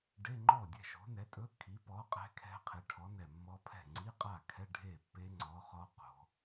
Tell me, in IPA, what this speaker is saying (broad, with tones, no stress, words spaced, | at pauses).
ɖe˧˥˧ŋ͡ǃɔ˥˩dʲɛ̤˥˩ ʃo̤˨˥nɛ˨˥tʼɵ˧˥˧ kʰi˨˥pɔ˨˥qʼɛ̤˦˥ kʰɛ̤˦˥qʰe˨˥ ʈʰɔ˨˥nɛ˧˩mːɔ˦˥ pʰɛ̤˥˩ ŋ͡ǀi˧˥˧qʼa˥˩kʰɛ˧˥˧ ɖʱe˥˩pːe˦˥ ŋ͡ǀɔ˨˥χɔ˦˥qo̤˩˧